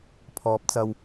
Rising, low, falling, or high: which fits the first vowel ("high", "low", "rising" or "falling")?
rising